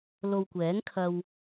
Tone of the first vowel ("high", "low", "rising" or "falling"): low